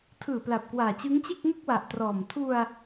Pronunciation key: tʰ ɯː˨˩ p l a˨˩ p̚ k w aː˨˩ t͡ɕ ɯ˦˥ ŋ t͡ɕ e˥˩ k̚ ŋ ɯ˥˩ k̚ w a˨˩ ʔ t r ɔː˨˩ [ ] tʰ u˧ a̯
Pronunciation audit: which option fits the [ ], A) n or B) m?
B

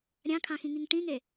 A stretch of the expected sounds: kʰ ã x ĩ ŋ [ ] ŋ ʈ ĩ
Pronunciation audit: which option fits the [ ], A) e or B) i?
B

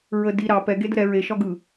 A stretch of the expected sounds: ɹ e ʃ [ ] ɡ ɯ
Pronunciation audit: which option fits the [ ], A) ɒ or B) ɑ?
A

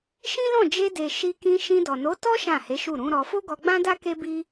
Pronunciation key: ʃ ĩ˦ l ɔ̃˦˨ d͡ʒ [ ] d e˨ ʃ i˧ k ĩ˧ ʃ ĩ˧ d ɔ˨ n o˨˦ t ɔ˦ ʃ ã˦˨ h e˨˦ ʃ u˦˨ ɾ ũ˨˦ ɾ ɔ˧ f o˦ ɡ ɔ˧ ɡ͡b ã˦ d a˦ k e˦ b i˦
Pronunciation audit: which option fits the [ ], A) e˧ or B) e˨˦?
A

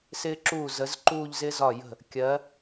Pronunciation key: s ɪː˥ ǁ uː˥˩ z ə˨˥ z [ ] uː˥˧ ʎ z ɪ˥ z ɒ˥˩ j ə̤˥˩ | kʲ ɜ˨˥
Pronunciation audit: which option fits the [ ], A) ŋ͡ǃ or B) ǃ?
B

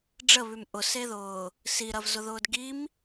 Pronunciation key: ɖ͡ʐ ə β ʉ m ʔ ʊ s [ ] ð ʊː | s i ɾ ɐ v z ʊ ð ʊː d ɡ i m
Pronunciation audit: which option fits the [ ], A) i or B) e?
B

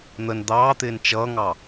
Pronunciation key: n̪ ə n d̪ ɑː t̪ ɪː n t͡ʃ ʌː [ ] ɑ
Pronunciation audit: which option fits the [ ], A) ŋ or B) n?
A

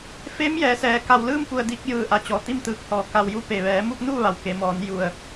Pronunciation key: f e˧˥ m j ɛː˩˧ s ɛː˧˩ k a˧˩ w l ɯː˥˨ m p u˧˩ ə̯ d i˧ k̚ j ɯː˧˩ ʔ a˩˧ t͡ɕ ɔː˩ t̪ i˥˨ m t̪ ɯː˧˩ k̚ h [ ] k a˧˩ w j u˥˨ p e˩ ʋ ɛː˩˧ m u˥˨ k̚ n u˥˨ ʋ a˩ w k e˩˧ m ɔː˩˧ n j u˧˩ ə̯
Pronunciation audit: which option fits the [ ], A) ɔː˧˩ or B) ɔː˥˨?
A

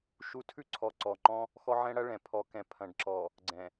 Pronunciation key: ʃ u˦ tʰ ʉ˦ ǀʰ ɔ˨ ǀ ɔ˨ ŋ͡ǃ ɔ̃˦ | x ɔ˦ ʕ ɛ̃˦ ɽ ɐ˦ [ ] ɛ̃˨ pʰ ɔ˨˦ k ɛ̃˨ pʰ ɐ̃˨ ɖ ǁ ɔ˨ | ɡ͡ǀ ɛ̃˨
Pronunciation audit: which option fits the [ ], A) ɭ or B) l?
A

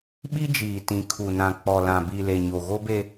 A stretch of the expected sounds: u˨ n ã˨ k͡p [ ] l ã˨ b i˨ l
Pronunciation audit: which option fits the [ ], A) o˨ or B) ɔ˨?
B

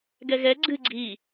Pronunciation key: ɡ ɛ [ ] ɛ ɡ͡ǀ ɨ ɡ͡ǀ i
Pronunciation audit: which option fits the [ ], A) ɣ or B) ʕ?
A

